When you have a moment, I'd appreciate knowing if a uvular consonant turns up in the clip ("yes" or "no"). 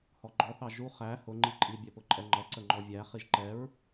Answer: yes